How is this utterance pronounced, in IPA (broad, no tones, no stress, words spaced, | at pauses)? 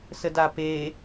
sədape